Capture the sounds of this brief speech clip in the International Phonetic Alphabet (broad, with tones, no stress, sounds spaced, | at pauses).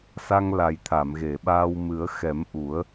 s a˧ ŋ l a˨˩ j t̪ʰ a˨˩˨ m ɣ e˨˩˨ ɓ aː˧ w m ɨ˨˩˦ ə̯ x ɛ˨˩˦ m ʔ u˨˩˦ ə̯